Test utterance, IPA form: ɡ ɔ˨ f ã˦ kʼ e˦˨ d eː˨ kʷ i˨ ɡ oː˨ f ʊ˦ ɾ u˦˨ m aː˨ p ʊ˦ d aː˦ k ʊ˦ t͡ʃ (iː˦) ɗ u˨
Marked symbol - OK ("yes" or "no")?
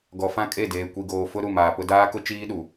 yes